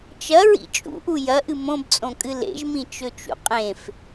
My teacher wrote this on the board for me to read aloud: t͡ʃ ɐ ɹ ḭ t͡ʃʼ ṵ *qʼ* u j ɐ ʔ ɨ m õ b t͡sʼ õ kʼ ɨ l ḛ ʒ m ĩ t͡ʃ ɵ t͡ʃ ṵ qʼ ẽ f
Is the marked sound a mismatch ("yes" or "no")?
yes